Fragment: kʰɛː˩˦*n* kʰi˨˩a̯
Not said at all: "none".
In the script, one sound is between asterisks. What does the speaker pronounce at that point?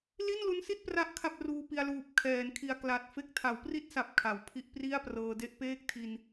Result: n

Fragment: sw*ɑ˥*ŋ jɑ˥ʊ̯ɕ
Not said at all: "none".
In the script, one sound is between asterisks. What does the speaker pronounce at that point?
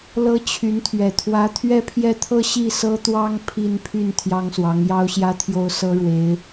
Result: ɑ˧˥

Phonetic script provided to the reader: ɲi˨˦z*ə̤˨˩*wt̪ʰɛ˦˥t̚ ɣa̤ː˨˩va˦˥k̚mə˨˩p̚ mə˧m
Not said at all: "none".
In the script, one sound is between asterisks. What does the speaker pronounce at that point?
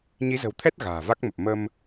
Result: ə̤˨˩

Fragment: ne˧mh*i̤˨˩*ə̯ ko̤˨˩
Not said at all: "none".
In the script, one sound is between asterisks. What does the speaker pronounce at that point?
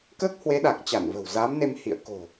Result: ḭ˧˨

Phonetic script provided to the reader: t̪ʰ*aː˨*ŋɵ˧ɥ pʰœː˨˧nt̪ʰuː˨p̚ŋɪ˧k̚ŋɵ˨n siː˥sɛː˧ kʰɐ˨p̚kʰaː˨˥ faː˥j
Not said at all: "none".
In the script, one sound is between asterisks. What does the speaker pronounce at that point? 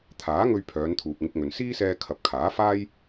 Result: aː˨˥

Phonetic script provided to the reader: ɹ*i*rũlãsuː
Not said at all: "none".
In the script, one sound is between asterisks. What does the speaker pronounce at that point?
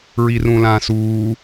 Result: i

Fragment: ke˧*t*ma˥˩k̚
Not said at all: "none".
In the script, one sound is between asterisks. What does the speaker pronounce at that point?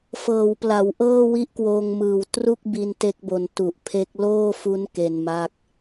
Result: n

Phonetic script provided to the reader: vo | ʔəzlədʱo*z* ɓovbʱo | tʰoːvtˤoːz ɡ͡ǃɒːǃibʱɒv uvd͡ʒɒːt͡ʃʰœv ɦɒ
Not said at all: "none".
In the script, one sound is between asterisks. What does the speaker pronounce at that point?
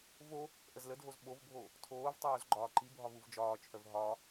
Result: z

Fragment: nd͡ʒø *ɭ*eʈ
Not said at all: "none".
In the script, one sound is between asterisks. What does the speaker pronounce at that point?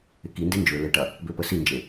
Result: l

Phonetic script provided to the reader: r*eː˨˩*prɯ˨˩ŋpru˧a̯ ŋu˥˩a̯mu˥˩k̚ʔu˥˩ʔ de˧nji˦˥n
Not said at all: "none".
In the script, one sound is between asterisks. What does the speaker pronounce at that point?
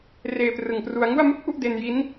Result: eː˧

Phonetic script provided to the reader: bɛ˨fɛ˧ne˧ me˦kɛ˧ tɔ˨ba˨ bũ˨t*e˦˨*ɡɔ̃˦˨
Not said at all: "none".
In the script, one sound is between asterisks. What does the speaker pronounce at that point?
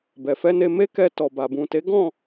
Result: e˨˦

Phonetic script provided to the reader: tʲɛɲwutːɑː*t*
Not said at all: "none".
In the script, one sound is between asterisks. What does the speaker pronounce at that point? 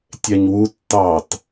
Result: t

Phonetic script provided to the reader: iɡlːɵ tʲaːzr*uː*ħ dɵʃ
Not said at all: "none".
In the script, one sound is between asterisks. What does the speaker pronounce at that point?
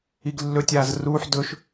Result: uː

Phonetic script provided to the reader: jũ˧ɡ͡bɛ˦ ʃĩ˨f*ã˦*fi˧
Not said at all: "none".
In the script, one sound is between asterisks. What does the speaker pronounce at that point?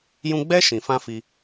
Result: ã˦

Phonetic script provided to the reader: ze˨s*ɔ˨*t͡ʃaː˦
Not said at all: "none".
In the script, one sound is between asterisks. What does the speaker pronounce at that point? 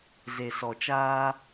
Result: ɔ˨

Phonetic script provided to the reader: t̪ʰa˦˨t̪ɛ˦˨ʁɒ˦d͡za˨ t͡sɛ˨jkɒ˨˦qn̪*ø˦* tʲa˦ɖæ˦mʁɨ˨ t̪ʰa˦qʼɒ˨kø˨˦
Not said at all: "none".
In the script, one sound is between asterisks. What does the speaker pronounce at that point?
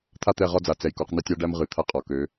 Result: ɛ˦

